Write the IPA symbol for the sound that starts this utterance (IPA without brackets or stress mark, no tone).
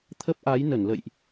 t̪ʰ